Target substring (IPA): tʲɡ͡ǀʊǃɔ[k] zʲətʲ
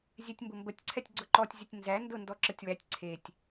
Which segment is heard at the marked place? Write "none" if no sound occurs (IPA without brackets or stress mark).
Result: tʲ